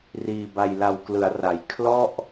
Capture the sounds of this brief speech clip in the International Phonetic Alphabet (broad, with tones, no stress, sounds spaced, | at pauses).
r iː˧ b a˧ j l a˧ w k l ɯ˩˦ a̯ r a˩˦ j kʰ l ɔ˥˩ ʔ